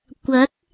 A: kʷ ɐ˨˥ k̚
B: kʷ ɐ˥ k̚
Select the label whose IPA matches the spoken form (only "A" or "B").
A